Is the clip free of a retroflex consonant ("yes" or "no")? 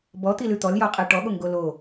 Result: no